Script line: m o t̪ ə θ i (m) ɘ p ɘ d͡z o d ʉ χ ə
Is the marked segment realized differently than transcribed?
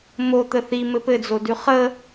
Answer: no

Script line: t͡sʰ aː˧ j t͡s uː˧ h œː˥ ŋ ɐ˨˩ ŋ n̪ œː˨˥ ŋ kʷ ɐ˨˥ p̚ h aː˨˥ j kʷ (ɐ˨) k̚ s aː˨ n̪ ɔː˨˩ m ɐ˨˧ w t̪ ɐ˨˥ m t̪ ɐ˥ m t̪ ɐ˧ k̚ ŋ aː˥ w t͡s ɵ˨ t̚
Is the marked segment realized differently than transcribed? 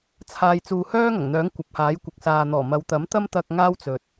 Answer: no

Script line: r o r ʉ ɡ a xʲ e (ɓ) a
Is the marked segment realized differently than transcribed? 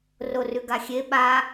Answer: no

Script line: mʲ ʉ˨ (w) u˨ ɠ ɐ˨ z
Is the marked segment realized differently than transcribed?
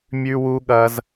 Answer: no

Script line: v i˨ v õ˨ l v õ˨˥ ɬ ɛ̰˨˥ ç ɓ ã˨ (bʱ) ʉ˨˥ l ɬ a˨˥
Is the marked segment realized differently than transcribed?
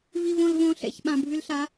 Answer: no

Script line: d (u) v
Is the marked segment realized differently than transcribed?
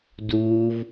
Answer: yes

